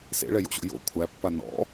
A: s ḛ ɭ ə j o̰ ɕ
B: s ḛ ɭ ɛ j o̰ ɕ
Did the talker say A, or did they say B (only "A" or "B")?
B